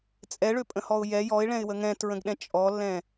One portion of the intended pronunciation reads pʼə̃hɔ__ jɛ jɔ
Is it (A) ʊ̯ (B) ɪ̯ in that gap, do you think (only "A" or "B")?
A